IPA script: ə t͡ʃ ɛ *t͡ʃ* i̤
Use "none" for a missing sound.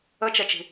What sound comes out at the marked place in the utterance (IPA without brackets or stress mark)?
t͡ʃ